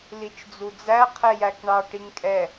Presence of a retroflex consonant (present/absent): present